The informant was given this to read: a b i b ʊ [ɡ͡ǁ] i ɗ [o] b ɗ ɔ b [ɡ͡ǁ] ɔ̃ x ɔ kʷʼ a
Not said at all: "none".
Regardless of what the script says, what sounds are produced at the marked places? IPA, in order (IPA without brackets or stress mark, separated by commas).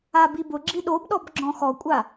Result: ɡ͡ǁ, o, ɡ͡ǁ